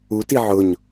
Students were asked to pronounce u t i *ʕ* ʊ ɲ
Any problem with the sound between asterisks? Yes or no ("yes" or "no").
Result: no